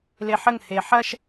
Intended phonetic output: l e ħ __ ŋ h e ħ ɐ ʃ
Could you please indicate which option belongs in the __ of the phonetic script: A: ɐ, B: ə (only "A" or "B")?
B